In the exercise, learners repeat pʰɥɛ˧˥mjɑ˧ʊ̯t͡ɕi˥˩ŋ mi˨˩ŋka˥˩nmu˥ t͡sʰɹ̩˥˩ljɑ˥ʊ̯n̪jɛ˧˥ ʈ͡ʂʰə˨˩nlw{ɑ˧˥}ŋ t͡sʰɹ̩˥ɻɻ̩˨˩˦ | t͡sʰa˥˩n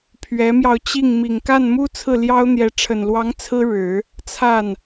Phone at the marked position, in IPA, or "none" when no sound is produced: ɑ˧˥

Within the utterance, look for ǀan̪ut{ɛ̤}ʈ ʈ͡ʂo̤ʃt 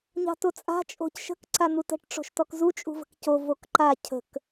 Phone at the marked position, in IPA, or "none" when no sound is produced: ə̤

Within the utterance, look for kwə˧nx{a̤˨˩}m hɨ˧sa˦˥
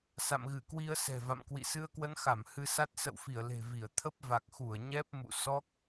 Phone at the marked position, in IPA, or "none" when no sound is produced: a˧˩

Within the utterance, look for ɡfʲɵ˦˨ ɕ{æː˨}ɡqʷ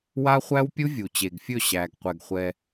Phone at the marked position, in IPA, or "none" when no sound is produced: æː˨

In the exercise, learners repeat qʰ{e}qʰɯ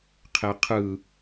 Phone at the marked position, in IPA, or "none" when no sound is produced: e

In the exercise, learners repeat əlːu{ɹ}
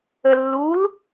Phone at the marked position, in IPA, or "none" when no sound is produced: l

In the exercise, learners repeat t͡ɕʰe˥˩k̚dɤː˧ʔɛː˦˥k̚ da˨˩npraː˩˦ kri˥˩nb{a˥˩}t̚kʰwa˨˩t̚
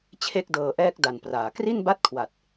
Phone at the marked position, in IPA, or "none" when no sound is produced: a˥˩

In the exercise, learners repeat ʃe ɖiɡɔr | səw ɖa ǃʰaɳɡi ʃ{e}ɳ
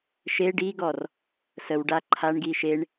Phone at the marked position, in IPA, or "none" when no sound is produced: e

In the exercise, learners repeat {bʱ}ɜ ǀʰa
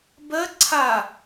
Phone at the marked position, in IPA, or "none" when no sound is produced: b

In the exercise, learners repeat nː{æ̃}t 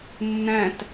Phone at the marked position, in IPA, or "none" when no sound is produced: æ̃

